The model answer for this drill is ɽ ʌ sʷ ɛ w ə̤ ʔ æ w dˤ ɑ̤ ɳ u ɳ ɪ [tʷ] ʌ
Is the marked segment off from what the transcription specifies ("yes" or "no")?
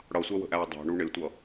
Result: no